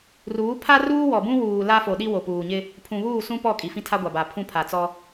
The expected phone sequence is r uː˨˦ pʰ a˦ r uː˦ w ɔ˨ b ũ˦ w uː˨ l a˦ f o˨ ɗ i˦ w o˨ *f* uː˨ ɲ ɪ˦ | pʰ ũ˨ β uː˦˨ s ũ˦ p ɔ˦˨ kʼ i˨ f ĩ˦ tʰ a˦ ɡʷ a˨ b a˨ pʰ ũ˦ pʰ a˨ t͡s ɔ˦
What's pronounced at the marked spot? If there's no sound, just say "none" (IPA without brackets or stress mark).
p